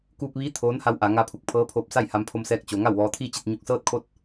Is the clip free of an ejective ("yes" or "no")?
yes